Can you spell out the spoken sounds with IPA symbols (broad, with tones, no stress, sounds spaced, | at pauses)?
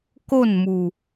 k o˦˨ n m u˨